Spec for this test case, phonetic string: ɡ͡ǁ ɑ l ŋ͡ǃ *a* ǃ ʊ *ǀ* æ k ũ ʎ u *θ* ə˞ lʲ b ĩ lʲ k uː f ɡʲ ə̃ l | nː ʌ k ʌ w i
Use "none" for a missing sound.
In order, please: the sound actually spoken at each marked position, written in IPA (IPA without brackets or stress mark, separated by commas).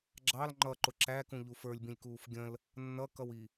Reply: ʌ, ǁ, f